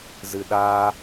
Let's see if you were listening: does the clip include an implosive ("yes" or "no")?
yes